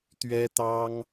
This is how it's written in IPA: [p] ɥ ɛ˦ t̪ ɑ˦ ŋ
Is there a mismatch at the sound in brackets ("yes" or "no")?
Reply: yes